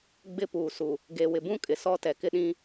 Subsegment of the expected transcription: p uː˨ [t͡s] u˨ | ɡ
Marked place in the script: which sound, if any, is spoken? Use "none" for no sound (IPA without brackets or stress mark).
s